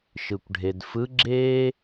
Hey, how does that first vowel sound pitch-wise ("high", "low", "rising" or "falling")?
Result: low